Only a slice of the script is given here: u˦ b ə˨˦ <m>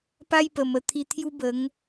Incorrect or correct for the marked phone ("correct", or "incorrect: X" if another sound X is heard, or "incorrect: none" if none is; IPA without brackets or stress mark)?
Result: incorrect: ŋ